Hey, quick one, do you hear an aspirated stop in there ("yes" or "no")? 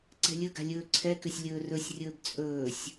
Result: yes